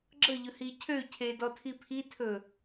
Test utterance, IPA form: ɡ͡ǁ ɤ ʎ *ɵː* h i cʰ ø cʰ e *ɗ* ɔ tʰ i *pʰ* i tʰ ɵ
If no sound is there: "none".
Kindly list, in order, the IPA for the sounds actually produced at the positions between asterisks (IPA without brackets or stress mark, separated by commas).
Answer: ɵ, d, pʰ